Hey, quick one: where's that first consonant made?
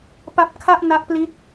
lips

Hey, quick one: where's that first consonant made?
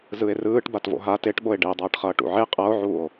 tongue tip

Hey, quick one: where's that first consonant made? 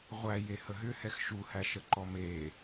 uvula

